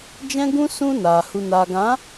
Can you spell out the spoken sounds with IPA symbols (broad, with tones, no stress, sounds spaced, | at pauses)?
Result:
d͡ʒ ɛ̃˦ ɡ ũ˦ s ũ˦ n aː˨ h u˨ n aː˨ ɡ ã˨˦